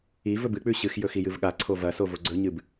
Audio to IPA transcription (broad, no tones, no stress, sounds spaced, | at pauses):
i v ɵ b ɨ k͡p ʉ ɕ ɨ x j ɵ x i j ɨ v ɠ a ǀʰ o v ɐ s o v o ɡ͡ǀ ɵ ɲ ɨ b